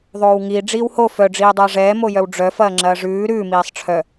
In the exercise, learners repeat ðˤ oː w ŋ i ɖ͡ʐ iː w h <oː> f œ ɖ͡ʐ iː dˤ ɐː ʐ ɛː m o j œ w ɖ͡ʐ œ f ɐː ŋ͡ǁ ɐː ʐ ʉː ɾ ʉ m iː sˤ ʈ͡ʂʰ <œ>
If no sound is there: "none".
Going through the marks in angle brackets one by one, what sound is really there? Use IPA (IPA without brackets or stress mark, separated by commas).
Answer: o, œ